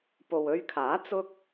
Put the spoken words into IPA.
p o˨ w ɵ˧ ɥ kʰ aː˨˥ t͡s ʊ˥ k̚

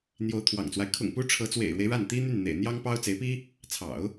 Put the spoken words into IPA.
n̪ j o˧˥ ʊ̯ t̪ʰ w ɑ̰˨˩ ŋ t͡s w a˦ ɪ̯ kʰ ʊ̰˨˩ ŋ p u˧˥ ʈ͡ʂʰ ɤ˧˥ t͡s w ḛ˨˩ ɪ̯ ɻ w e˦ ɪ̯ ɻ a˥˩ n t̪ i˥ n̪ y˥˩ n n̪ ḛ˨˩ ɪ̯ n̪ j ɑ˥ ŋ p ɑ˥ ʊ̯ t͡s e˧˥ ɪ̯ p i˥ | t͡sʰ ɑ̰˨˩˦ ʊ̯

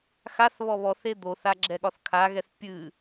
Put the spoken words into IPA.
x a θ β ɔ β ɔ θ e d̪ o θ a ɡ͡ǁ ɛ ɠ ɒ θ kʰ a ɣ ɛ θ pʲ ɨ

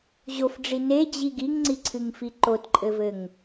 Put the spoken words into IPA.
ʑ o f ɖ͡ʐ i n e d͡ʑ i ɡ i ŋ ŋ͡ǀ i ǀʰ ɨ ŋ f i ǃ o t ǃʼ ɘ v ɘ ŋ

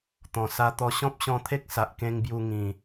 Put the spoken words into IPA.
t̪ ɔ̃˨˩ s a˧ t̪ ɔ˧ ɕ ɔ̃˦ p̚ ɕ ɔ̃˧ t̪ʰ e˦ k̚ s a˨ ʔ k ẽ˧ ŋ b j u˧ ŋ ĩ˨˩

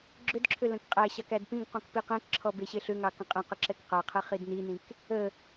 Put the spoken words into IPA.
ɡ͡ǁ ʏ d ǁʰ ʏ l ə̃ k qʼ æ ɕ ɑ k æ d p ĩ ɡ q ɔ̃ k p i q ɛ̃ k ǁʰ ɔ b e ɕ e ɬ ʏ ŋ ɑ k ə̃ qʼ ɛ̃ q ə ǁ ɛ k q a qʰ ɛ χ i d n i n ĩ k | ə

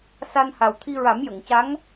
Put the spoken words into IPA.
s a˧ n h a˨˩ w t̪ʰ i˧ ɹ a˨˩˦ m j ə˨˩˨ ŋ c a˧˥ ŋ

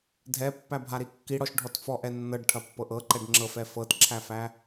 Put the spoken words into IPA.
dʱ ɛ pː æ bʱ a ɾ i kː i ɽ ɔ ʃ ɖʱ ɔ t f ɔ ʔ ɛ nː ɤ ɖ ʈʰ ɐ pː ɤ ʔ ɤ ǃ ɛ ɖ ŋ͡ǁ ɤ f ɛ f ɤ t ǁʰ æ f æ

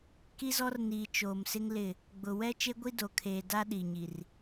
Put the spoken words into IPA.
k i˦ z ɔ˦ r n iː˨ t͡ʃ oː˨ m s ɪ˦ ŋ l ɪ˦˨ | ɡ͡b ʊ˨ w ɛ˦ t͡ʃ e˦ ɡʷ i˦ d o˨ kʰ eː˨ d a˦ ɗ i˨ ɲ i˨ r

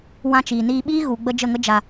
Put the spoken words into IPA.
w ã˦ t͡ʃ iː˨ n iː˧ ɓ iː˦ ɣ u˨ ɡ͡b ə˦ d͡ʒ ə˦˨ ŋ ə˦ d͡ʒ a˨

